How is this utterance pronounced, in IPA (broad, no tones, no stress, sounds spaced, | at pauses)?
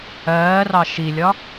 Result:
ɜː r ɑ ʃ i lʲ ɒ